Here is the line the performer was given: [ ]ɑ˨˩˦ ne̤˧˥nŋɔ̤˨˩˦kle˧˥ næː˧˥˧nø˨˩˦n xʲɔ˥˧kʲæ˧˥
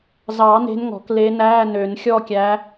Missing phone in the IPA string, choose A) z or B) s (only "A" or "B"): A